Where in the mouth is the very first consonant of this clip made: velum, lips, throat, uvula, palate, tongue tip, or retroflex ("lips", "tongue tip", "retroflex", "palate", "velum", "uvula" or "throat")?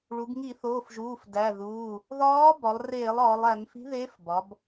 retroflex